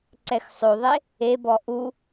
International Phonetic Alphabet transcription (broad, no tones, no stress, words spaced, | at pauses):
ǀɛxsˤoðˤe | ebɔ ʔu